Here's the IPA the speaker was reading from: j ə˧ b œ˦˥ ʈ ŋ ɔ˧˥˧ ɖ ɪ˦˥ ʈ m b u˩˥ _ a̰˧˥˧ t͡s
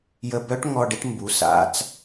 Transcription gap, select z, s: s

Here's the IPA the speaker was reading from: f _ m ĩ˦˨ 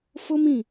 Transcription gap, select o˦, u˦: o˦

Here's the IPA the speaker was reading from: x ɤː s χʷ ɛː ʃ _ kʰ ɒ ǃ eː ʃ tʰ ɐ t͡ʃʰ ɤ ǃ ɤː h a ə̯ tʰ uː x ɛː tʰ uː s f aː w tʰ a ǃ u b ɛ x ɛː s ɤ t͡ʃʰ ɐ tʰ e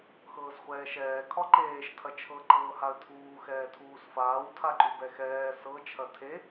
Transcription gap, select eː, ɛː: ɛː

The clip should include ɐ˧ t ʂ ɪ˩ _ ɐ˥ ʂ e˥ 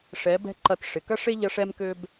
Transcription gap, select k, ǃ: k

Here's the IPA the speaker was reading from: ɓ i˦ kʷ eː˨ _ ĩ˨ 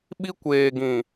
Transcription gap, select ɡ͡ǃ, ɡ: ɡ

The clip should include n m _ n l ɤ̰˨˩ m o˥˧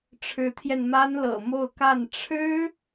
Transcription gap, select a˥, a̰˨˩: a˥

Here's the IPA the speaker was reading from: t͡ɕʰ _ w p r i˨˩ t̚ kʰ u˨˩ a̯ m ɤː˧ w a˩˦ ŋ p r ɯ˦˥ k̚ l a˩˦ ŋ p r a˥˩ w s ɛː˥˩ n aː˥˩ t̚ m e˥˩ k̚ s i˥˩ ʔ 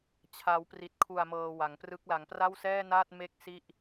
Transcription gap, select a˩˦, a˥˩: a˩˦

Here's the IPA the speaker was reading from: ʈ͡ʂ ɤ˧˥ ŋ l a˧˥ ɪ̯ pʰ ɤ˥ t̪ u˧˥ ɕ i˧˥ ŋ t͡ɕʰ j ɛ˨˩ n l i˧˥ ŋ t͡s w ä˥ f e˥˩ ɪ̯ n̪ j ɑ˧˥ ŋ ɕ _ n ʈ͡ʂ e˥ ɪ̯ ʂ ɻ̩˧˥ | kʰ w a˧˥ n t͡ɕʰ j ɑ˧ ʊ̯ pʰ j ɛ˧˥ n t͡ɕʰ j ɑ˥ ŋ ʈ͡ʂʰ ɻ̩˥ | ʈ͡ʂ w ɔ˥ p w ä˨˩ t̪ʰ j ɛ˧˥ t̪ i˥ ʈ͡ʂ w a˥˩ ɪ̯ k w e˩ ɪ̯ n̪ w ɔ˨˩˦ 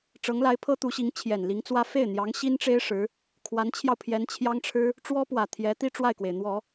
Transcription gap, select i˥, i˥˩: i˥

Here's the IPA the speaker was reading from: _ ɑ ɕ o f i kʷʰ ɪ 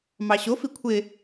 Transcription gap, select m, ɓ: m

